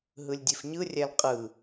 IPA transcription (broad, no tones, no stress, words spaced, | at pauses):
ɦɯlʲdʲefɲɯrʲæl qʼɯ